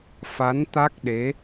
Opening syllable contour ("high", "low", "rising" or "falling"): rising